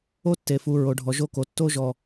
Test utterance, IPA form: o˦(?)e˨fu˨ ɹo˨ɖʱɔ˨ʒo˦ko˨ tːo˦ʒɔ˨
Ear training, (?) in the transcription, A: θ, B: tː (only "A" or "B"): B